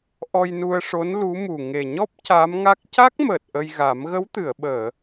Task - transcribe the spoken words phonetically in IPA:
ʔ ɔ˧ j n u˧ ə̯ ʂ o˧˥ n l u˧˥ m u˨˩ ŋ e˨˩ ɲ ɔ˦˥ p̚ c a˧˥ m ŋ a˦˥ k̚ c a˦˥ k̚ m əː˨˩ t̚ ʔ ə˧ j ɣ a˨˩˦ m ɣ ə˧˥ w t̪ ɨ˨˩˨ ə̯ ɓ əː˨˩˨

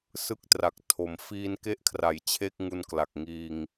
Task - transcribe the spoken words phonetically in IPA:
s ɯ˥˩ k̚ t r a˨˩ k̚ tʰ o˨˩ m f iː˧ n k e˦˥ ʔ kʰ r a˩˦ j t͡ɕʰ e˥˩ k̚ ŋ u˧ n k l a˨˩ k̚ ŋ iː˧ ŋ

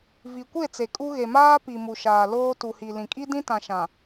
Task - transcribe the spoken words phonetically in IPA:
v i˨ kʷ e˦˨ t͡s e˨ kʼ u˦ ɣ e˨ m aː˦ p i˨ m u˨ ʃ aː˨ l oː˦ t u˨ h i˨ l ĩ˨ kʼ i˦ d ĩ˦ t ã˨ ʃ ã˨

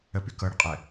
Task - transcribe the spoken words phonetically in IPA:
ə p y k ɤ ɽ ə qʼ ɛ

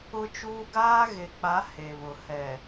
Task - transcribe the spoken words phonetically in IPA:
ʊ˦ t͡ʃ uː˦ ɡ aː˦ ɣ e˨ k͡p a˨˦ h e˨ β ʊ˨ h ɛ˨

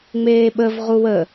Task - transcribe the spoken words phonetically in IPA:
ŋ͡m eː ɓ ə v ʁ u w ə

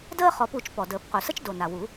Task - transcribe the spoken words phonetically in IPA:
d əː˥ χ ɔ˨˩˦ p u˨˩˦ t͡ʃ p ɔ˨˩ d əː˨˩˦ p q u˨˩ s ə˥ t͡ʃ d o˨˩ n a˨˩ w u˨˩˦

